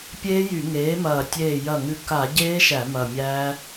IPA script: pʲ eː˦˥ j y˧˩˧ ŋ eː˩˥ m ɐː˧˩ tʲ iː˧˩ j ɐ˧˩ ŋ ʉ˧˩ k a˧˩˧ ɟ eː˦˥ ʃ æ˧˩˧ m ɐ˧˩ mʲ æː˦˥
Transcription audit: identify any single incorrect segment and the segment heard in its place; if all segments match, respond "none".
iː˧˩ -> eː˧˩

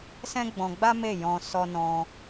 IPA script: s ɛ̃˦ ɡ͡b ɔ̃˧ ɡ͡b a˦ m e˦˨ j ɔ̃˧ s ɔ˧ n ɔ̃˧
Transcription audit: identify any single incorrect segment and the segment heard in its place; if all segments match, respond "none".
none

